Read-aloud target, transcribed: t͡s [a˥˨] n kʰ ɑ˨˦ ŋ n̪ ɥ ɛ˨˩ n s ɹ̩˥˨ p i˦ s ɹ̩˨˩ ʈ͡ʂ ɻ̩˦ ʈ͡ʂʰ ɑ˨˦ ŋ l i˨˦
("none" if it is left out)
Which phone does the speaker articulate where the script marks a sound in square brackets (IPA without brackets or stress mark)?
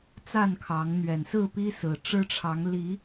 a˥˨